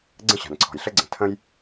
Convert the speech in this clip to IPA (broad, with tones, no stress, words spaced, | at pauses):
ɡ͡ǀə̃˥ɕa̤˩nǀʰɔ̤˩jɬɘ˥ ɡ͡ǀə̃˩tʰə̃˥j